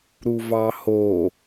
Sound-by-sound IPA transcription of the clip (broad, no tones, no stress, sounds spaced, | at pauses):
ɾ u v ɑ h o